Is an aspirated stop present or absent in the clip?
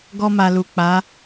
absent